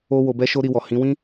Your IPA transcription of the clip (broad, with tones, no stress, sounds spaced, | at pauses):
o˦ w o˧ b ɛ˦ ʃ o˦ ɾ i˧ w ɔ˨ h ĩ˨˦ w ĩ˦